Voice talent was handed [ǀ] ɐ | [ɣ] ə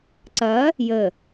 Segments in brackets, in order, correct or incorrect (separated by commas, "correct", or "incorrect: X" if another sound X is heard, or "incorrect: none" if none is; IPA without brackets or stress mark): correct, incorrect: j